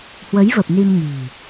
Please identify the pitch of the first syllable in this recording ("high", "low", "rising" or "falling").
rising